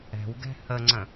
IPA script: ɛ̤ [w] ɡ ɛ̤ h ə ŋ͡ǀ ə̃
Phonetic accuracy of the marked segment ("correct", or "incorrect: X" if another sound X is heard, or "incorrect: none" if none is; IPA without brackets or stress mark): correct